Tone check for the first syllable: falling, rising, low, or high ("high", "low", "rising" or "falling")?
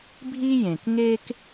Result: high